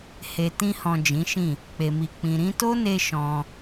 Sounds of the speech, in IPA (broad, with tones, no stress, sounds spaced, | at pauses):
h e˨ t ĩ˧ h ɔ̃˨ d͡ʒ ĩ˨˦ ʃ ĩ˦˨ | k͡p e˨ m i˨ k͡p ĩ˨ ɾ ĩ˧ t o˦ n e˧ ʃ ɔ̃˧